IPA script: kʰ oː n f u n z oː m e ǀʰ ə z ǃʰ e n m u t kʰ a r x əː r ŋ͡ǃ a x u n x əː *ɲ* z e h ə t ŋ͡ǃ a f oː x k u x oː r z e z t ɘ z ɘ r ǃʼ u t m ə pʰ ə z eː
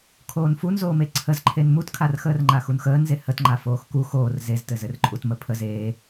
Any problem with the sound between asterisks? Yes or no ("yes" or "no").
yes